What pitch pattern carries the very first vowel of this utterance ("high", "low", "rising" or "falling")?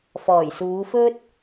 low